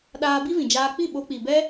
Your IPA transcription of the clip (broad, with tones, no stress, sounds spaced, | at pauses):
ɗ aː˧ b i˦ v ĩ˨ d͡ʒ aː˧ k͡p i˦˨ ɓ o˧ k͡p i˨ b ɛ˦